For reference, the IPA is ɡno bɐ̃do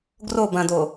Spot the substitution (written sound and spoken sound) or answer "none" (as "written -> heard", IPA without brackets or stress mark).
n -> r